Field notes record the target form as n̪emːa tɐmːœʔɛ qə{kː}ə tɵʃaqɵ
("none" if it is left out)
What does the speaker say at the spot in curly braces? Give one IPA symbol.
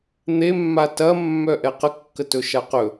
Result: kː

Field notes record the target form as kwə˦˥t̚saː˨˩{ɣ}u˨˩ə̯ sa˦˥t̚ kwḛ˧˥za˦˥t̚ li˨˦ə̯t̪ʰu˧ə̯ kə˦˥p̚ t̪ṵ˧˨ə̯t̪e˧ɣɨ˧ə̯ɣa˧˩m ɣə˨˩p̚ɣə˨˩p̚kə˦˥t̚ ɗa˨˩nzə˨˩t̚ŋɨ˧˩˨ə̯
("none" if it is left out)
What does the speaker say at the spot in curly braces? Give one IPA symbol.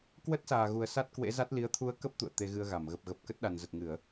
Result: ɣ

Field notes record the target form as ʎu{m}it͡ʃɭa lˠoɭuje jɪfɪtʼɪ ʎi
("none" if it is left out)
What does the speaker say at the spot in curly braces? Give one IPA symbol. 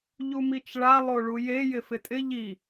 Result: m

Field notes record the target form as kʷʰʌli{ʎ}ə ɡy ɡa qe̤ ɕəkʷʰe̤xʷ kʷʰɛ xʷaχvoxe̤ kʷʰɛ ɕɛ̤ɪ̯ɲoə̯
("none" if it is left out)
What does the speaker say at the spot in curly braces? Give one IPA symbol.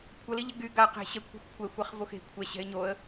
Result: ʎ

